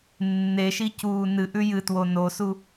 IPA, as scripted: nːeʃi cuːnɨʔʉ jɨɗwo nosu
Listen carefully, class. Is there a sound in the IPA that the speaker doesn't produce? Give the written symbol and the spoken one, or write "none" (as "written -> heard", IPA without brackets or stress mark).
ɗ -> t